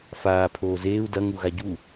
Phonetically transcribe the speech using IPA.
faːpʰoː zeːu̯ dɐŋuɣa ɟu

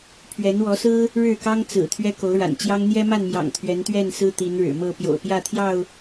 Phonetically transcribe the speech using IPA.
pʰɥɛ˨˦nwɔ˨˦sɹ̩˦ | ɻɻ̩˥˨kɑ˦ŋ t͡sɹ̩˨˩ t̪ʰɥɛ˦ko˨˦ʊ̯ɻa̰˨˩nt͡ɕjɑ˦ŋ n̪jɛ˦ma˥˨nmjɑ̰˨˩ŋ t̪ʰɥɛ˨˦nt̪ɥɛ˥˨nsɹ̩˦ t̪i˨˦nɻɻ̩˨˩mɤ˥˨ pjo̰˨˩ʊ̯pjä˥˨t̪ʰjɑ˥˨ʊ̯

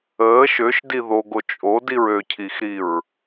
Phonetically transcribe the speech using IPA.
əː ʃøʃdi ðoɡo t͡ʃʼodiɹ øcʰixɾiɹ

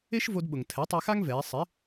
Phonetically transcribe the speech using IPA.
e˥ʃvo˧dɓʊ˩ŋ tʰɛ˩˥tˤe˧xa˥ŋvɛː˩˧ sˤɪ˩˥

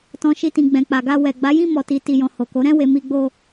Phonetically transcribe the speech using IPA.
tɔ̃˨ ʃi˧tĩ˨ ɡ͡bɛ̃˨k͡pa˨ɡa˧ wɛ˨ ɡ͡ba˨˦jĩ˦˨ mɔ˨ti˨ti˨jɔ̃˨ ho˨ko˨˦ ɾɛ̃˦˨we˨ mi˧ɡ͡bo˧

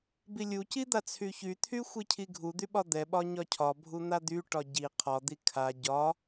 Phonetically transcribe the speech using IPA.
bilʲuci d̪at͡sʰyçyt̪ʰy xʷicʰiɡʱud̪y ɓɒd̪ɛɓɒ ɲɒcʰɒbʱu n̪ad̪yʈɒ ɟi qʰɒd̪i kʰa ɟɒ

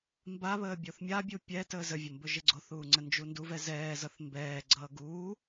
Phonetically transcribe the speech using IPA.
mbaβəː bʲoθmʲabʲu pʲɛ təːzəvʲʌ mbɵʒɪɡ͡ǀoθuː ŋ͡ǀənd͡ʒunduvɛ zɛːzʌθ mbɛːɡ͡ǀʌː ɡuː

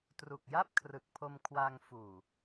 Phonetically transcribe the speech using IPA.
tru˨˩k̚ja˥˩p̚kʰrɯ˨˩k̚pʰo˧m kʰwa˧ŋfuː˨˩

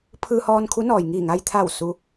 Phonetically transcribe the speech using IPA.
pʰɯː˧hɔː˧n kʰu˧˥nɔː˩j ŋiː˧˩ŋa˧jt̪ʰa˧˩w su˧

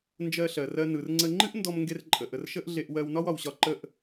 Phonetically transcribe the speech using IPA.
nd͡ʒɜ˧ɬɜ˩rɜ˧ nɯ˩rŋ͡ǀə˧ ŋ͡ǃɨ˥ʔndɔ˧m ŋɡe˧rǃʼə˩ʔə˩r ʃə˥ʔɮe˧ʔ wɜ˧wnɒ˥wɒ˩wɕɒ˧ ǃə˧ʔ

